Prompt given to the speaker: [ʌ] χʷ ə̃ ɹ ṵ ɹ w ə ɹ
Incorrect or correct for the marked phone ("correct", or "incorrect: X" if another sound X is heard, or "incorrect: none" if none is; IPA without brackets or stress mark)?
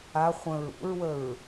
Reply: incorrect: a